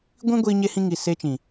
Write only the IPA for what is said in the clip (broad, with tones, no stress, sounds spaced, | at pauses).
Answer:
ɡʷ ĩ˦ ɡʷ iː˧ ɲ e˧ h ĩ˧ ŋ i˨ s eː˧ t͡ʃ ĩ˨